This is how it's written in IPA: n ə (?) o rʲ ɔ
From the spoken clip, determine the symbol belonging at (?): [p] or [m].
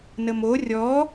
m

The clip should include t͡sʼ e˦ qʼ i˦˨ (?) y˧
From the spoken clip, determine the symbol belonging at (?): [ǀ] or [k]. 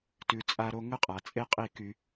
k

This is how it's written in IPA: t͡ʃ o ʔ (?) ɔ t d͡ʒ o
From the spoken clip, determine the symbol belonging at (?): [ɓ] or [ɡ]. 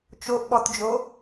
ɓ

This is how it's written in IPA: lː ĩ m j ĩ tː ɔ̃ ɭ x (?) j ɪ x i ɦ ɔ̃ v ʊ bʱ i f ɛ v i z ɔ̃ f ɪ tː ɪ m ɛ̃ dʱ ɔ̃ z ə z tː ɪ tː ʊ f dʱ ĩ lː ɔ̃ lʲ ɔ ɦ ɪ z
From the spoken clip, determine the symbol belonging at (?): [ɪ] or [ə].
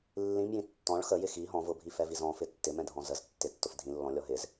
ə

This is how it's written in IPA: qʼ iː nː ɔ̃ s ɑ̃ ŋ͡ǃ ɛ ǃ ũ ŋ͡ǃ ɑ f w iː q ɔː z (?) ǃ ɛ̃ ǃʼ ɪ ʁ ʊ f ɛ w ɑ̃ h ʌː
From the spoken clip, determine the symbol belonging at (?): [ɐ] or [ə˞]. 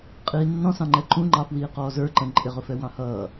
ə˞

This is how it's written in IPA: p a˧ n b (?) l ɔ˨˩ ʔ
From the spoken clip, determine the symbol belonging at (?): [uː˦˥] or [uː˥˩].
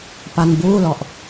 uː˥˩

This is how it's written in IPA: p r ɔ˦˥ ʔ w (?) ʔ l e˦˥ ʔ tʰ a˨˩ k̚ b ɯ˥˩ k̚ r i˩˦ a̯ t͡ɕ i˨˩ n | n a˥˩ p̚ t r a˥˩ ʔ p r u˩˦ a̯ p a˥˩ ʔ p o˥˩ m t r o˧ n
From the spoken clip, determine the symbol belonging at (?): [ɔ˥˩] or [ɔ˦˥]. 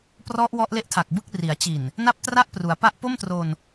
ɔ˦˥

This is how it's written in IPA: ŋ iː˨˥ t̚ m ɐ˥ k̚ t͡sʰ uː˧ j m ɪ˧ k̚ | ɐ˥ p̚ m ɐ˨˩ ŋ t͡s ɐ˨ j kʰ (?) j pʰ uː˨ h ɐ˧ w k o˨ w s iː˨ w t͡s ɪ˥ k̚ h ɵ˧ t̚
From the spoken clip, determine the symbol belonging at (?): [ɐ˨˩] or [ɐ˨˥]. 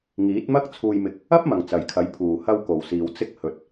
ɐ˨˥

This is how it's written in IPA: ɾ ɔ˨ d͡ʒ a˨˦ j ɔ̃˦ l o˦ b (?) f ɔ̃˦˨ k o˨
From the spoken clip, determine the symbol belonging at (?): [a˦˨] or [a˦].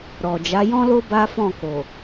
a˦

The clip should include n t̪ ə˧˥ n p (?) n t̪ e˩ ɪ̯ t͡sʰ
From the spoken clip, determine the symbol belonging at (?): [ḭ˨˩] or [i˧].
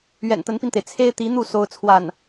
i˧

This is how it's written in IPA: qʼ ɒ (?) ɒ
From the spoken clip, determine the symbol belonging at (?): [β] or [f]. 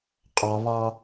β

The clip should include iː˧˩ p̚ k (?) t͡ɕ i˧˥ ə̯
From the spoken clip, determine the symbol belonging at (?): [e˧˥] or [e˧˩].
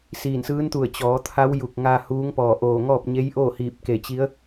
e˧˩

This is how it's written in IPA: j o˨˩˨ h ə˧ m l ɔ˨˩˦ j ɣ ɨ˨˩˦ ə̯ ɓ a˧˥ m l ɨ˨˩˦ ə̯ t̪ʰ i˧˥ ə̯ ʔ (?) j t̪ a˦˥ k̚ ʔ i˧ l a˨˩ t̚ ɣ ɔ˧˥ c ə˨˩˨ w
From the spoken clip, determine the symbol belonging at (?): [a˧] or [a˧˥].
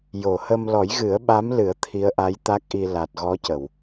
a˧˥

